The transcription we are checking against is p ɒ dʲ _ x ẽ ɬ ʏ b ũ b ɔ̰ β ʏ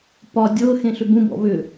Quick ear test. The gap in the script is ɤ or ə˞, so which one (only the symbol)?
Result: ɤ